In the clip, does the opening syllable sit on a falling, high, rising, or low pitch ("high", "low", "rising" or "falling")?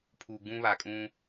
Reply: low